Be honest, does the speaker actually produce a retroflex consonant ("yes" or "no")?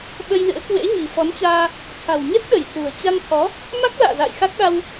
no